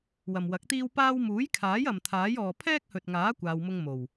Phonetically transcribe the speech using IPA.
w ɐ˨ m w ɐ˨˥ k̚ t̪ iː˥ w p aː˥ w m uː˨˥ j kʰ aː˨˥ j ɐ˨ m t̪ʰ aː˨˥ j ɔː˨ pʰ ɛː˥ k̚ h ɵ˨ t̚ ŋ aː˨˥ kʷ aː˧ w m ʊ˥ ŋ m o˨˩ w

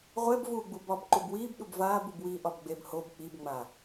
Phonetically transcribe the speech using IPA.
ʁʷ ɛ b v uː ɡ͡b u b ɒ b ǃ u b w iː b ɗ u b v aː b u b w iː ʔ ɒ b ɡ͡b e b h o b k͡p i b ŋ͡m a

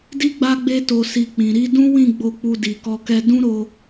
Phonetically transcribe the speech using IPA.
d i˦ ɡ͡b a˦ ɡ͡b e˦ t o˧ s i˧ k͡p ĩ˨ ɾ i˧ d ũ˦ w ĩ˦˨ ɡ͡b o˧ k͡p u˧ d i˧ k ɔ˦ k ɛ˦ d ũ˦ ɾ o˧

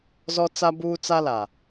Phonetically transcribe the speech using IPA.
z ɔ˦ t͡s a˦ b uː˦ t͡s a˦ l a˨

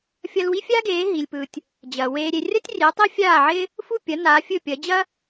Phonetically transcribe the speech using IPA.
fʲ ɐ˧ l w i˥ fʲ aː˥ ɡ eː˩˥ ɦ i˩ lʲ p ɯ˩ tʲ | d͡ʑ ɐ˩ w eː˧ ɾʲ e˧ rʲ ɐ˥ tʲ rʲ e˩˥ tˤ i˥ fʲ aː˥˩ ʕ ɪ˥ | f u˥˩ pʲ ɐ˩˥ n aː˩˥ fʲ ɵ˥˩ pʲ ɐ˩˥ d͡ʑ ɐ˥

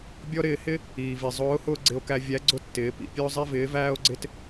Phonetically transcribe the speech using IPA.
bʲ ɔ˥ ɾ ɪː˧ h ɪ˥ | iː˩ v i˩ zˤ ʊː˧˥ h ʊː˥ ɡ͡ǀ ɪ˧ o̯ k æ˧ vʲ æ˧˥ ɡ͡ǀ ʊ˥ tː ɪː˩˧ p ḭ˧ pʲ ʊː˥ zˤ i˥ v ɪː˧˥ v æː˥ o̯ ɡ͡ǀ ɪ˥ t

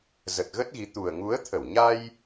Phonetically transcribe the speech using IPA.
z ə˨˩ t̚ ɣ ə˦˥ t̚ ɣ i˨˦ t̪ u˨˩ ə̯ ŋ u˨˦ ə̯ t̪ʰ ə˧˩ w ɲ a˧ j

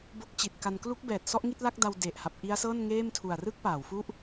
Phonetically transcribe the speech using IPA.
b o˦˥ k̚ t͡ɕ i˨˩ t̚ k a˧ n k l u˦˥ k̚ b ɛː˨˩ t̚ s ɔ˦˥ ʔ ŋ i˥˩ t̚ l a˥˩ k̚ d a˧ w d e˨˩ ʔ h a˨˩ p̚ ʔ i˦˥ a̯ s ɤː˥˩ n ŋ eː˥˩ m tʰ u˨˩ a̯ r ɯ˥˩ k̚ p aː˩˦ w f u˥˩ ʔ

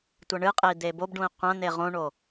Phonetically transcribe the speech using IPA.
tʷ ɐ ɳ ɨ qʼ e i̯ d̪ e b o b ɖ ũ i̯ qʷ ɐ̃ n̪ e ʁ õ ɳ o

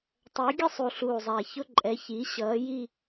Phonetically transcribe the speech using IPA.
tˤ ɜ˩˥ ɡʲ ə˥˧ sˤ u˨˩ ɬ uː˨˩ zˤ æ˨˩ ç ʊ˥˧ ǃʼ ɛ˩˥ ç i˩˥ ɕ ʌː˩˥ j i˥˧

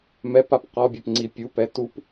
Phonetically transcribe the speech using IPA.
m ɛ p a p q ɔ bʲ ɛ p ŋ͡ǀ i pʲ u p ɛ t u p

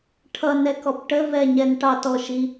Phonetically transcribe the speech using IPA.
ʈʰ ʌ n ɛ k ɔ p ʈ ə v ɛ ɲ ɛ n ʈ ɑ t ɔ ʃ i

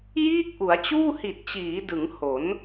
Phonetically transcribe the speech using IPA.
j iː˥˩ k̚ ʔ u˩˦ a̯ t͡ɕ uː˥˩ h i˨˩ t̚ t͡ɕ iː˩˦ d ɯ˩˦ ŋ h o˩˦ n

